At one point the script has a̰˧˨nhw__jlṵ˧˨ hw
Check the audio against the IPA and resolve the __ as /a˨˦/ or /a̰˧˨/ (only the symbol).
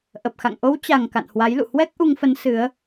a˨˦